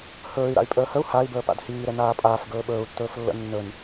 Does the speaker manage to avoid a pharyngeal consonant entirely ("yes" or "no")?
yes